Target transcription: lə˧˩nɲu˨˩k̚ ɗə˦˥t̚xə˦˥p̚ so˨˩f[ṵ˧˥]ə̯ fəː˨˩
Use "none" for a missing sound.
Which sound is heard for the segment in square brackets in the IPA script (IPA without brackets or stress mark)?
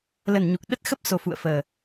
ṵ˧˨